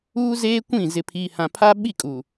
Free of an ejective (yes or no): no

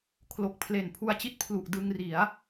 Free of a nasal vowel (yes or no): yes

